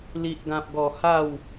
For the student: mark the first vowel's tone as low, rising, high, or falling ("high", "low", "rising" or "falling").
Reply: low